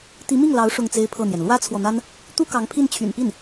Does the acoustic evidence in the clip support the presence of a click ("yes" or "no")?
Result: no